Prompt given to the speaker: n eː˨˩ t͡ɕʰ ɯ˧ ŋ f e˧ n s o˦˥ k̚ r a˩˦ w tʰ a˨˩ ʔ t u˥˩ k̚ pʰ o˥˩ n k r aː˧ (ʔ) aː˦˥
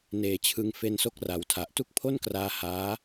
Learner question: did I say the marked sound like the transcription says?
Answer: no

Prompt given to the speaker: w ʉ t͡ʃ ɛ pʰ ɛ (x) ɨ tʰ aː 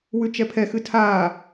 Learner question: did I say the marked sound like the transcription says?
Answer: yes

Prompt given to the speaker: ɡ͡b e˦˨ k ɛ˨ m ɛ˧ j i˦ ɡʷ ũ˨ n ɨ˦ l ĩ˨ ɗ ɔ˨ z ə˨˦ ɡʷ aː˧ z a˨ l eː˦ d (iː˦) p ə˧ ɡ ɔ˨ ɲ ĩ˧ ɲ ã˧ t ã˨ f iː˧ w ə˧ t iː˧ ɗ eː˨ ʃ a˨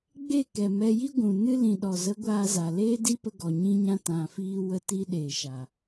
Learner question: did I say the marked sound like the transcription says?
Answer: no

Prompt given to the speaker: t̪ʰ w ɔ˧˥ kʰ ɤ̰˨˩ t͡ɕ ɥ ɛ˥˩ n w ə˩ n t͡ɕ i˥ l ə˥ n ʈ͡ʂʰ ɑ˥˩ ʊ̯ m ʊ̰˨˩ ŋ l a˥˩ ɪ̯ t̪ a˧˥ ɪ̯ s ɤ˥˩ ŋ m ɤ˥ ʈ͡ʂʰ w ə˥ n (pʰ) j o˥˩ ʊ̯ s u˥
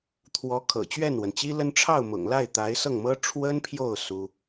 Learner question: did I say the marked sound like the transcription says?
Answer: yes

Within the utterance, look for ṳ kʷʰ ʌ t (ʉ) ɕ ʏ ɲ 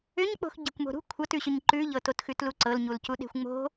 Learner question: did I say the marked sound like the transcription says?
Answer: yes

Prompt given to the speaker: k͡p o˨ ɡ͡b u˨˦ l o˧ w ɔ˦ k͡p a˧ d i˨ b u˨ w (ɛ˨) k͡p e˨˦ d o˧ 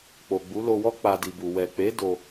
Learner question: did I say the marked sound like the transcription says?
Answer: yes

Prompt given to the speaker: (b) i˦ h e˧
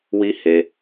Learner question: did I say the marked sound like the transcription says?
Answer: no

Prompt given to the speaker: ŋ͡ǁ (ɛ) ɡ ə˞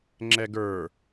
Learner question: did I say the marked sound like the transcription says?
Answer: yes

